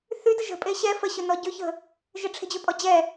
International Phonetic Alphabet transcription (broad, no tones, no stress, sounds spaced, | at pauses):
θ y d ə ʒ ə̤ pʼ e ɕ ɛ f ə ɕ ø n ɔ ɟ ø ç ə̤ | ʒ ɪ ʈ͡ʂʰ e̤ d͡ʑ ø pʼ ɔ d͡ʑ ɛ